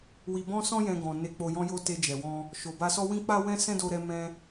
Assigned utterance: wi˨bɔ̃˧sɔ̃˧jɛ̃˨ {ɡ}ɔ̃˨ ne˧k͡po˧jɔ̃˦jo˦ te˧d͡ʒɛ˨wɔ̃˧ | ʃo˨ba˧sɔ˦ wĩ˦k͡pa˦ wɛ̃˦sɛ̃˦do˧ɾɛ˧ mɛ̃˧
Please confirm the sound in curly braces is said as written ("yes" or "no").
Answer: yes